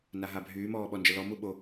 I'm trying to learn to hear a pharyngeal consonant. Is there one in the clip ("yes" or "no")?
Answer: no